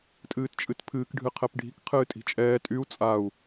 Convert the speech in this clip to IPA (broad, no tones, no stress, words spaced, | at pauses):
tʼɨːtt͡ʃʼɨtpʰɨːk ɖʱɨqʰɛpɖʱi̤k qʰɨːtʼi̤t͡ʃʼɛː tʼyu̯ t͡sʼau̯